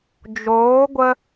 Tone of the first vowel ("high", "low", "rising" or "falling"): rising